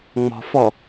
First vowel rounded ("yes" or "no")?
yes